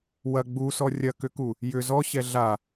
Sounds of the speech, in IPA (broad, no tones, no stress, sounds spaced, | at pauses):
w ɐ ɡ͡b u s ɔ rʲ ɐ k ʏ k u | j ʏ z ɔ ɕ ɛ ɮ a